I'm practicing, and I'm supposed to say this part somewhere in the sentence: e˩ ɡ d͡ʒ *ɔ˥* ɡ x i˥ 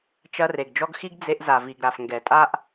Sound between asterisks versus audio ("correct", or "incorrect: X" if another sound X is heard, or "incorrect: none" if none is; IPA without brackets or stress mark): correct